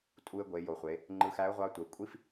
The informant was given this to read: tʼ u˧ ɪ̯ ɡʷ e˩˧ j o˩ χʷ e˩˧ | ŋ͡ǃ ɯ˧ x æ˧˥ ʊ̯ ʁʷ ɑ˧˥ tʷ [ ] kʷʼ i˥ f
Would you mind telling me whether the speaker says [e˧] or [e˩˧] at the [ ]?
e˩˧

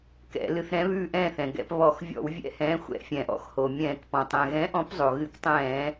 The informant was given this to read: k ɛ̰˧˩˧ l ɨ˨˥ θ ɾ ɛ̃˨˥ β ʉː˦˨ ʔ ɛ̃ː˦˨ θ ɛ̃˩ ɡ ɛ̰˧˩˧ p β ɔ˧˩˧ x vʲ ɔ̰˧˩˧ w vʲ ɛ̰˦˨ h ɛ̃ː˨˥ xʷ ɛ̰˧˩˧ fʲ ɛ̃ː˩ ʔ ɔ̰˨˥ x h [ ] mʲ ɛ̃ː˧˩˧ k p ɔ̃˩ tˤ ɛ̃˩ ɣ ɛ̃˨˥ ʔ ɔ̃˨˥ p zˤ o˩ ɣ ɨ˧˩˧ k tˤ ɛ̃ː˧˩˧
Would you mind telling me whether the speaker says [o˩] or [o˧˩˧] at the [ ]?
o˩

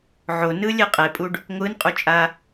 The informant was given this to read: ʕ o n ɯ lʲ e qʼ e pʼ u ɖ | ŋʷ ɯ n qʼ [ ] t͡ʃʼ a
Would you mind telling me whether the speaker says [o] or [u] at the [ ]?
u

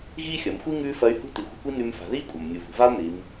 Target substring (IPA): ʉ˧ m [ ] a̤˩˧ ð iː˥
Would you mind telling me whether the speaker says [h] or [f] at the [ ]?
f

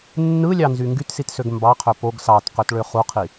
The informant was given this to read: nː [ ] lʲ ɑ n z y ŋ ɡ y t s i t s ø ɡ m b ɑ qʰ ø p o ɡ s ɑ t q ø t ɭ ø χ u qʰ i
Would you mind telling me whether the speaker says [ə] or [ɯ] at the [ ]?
ɯ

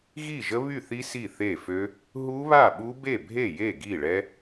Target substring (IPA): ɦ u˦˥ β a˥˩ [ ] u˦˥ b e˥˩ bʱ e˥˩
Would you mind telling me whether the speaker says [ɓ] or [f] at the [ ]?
ɓ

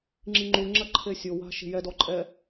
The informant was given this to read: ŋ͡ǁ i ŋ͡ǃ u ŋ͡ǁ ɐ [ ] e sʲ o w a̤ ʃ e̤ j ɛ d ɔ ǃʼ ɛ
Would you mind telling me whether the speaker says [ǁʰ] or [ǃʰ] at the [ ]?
ǃʰ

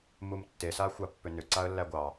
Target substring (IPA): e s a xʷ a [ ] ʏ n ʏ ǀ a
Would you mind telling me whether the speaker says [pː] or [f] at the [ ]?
pː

